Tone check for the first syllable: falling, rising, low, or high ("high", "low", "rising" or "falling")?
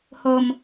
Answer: low